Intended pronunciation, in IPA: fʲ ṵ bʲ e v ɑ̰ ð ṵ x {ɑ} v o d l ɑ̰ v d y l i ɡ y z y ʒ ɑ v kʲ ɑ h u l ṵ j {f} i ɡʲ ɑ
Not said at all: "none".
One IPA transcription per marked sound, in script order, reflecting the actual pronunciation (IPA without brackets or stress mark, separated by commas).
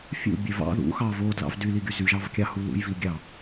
ɑ, v